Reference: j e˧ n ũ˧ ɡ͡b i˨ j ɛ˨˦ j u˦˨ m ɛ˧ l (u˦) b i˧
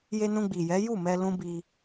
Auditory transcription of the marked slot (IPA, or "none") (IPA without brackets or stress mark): ũ˦